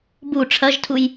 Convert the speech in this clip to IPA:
b u ʈ͡ʂʰ ɐ ʒ tʰ u j

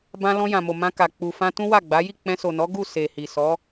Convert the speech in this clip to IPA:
b ã˧ l ɔ̃˧ j ã˨ m o˨ m ã˧ k a˨ k͡p u˨ f ã˧ t ũ˦ w a˦˨ ɡ͡b a˨˦ j i˦˨ k͡p ɛ̃˧ s o˨ n ɔ˨˦ ɡ u˦˨ s e˨ h i˨ s ɔ˨˦

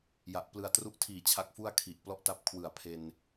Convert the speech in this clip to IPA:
j a˨˩ ʔ p l ɯ˧ a̯ t r u˦˥ ʔ tʰ iː˨˩ t͡ɕʰ a˦˥ k̚ f u˥˩ a̯ kʰ i˨˩ ʔ p l ɔ˥˩ ʔ t a˦˥ p̚ kʰ w ɯ˩˦ a̯ pʰ e˧ n

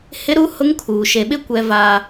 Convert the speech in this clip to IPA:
h ɪ˦ ɾ u˦ h ʊ˦ ŋ kʰ uː˨ ʃ e˨ ɓ ɪ˦˨ kʷ ɛ˦ v aː˦

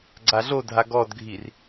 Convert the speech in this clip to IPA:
ɡ͡ǀ a ɮ o dʱ a ɡ ɔ d ɡʱ i r

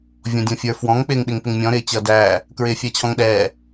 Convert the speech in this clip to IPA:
vʲ ɔ̃ dʲ ɔ̃ fʲ ə˞ f w ɔ̃ ŋ k͡p ɪː ŋ ɗ ɪ ŋ p ɪ ŋ mʲ ɔ̃ ɾ ɪː t͡ɕ ʌ d æː | k ɹ ɪː fʲ æ t͡ɕʰ ɔ̃ ŋ ɗ ɛː

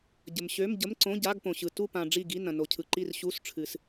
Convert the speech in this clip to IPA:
ɟ ə˨ m ɕ ø˧˥˧ m ɟ ə˧˥˧ m ǀ õ˧˥˧ ɟ a˧˥˧ ɡ p õ˨ ɕ ɯ˨ t u˦˨ p ã˨ ɖ͡ʐ i˦˨ ɡ i˧˥˧ n ɐ̃˨ n o˨ cʰ ɯ˨ ǃ i˦˨ r ɕ u˧˥˧ s ʈ͡ʂʰ ɨ˨ s

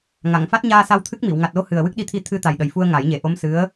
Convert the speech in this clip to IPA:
ŋ a˨˩˨ ŋ f a˦˥ t̚ ɲ aː˧ s a˧ w t̪ʰ ɨ˦˥ k̚ m i˨˩˨ w ŋ a˨˩ t̚ l o˧˥ h ɨ˨˩ ə̯ w ɨ˦˥ k̚ ɗ i˧ t̪ʰ i˧ t̪ʰ ɨ˧ t̪ a˨˩ j ɗ ə˨˩ j f u˧ ə̯ ŋ a˨˩˦ j ɲ e˨˩ ʔ o˧˥ m s ɨ˧˥ ə̯

